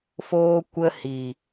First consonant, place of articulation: labial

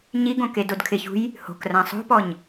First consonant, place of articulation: palatal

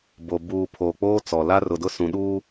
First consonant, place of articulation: labial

